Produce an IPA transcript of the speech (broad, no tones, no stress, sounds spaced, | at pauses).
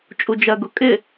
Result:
t͡ʃʼ u d͡ʒ ɜ ɡ ʊ kʼ ɪ